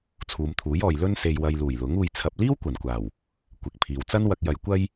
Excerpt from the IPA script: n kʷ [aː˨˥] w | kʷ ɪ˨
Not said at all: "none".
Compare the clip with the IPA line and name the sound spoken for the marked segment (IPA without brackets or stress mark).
aː˨˩